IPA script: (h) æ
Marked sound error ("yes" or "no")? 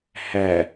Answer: no